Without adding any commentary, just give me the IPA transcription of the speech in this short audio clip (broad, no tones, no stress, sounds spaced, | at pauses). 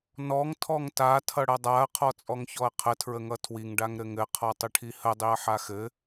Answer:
n ɔ ŋ tʰ ɔ ŋ t a tʰ ʌ ɽ ɐ dˤ a ɐ̯ qʰ ɔ t͡sʼ ɔ ŋ ç ɔ ɐ̯ qʰ ə tʰ ɹ ə ŋ ʌ tʰ w i ŋ ɖ a ŋ ɾ ɘ ŋ ɘ qʰ ɔ tˤ ɘ ʈʰ i h ə dˤ i ɐ̯ ħ a x ɘ